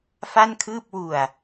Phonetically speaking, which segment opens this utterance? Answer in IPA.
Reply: f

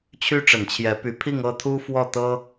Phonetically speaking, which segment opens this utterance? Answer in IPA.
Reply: t͡ɕʰ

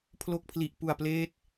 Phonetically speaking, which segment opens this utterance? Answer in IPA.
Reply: pʰ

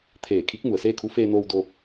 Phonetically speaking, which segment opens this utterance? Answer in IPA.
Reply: t̪ʰ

